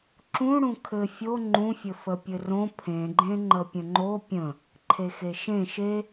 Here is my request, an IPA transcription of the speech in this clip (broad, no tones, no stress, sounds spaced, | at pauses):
ǁ ũ ɽ ũ kʰ ɘ fʲ o ŋ͡ǃ ũ fʲ ɘ f ə pʲ ɘ r õ pʰ ẽ ɡ͡ǃ ẽ ŋ͡ǃ ə pʲ ə̃ ŋ͡ǃ o pʲ ə̃ | ǃʰ e x e ʃ ẽ ʃ e